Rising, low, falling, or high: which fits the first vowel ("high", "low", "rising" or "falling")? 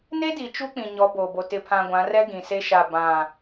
high